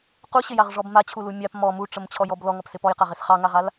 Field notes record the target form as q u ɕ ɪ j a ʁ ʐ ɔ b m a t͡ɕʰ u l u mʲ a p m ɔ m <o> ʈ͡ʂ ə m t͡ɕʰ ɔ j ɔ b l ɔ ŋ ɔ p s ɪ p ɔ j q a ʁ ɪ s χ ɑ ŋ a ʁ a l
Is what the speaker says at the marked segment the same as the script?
no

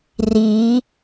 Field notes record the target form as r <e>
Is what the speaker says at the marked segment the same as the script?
no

